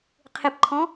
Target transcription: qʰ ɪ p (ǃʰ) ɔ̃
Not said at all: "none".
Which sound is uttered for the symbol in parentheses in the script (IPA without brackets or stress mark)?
ǃʰ